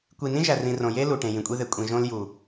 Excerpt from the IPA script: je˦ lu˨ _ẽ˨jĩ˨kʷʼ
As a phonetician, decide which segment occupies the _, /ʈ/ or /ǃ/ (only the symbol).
ʈ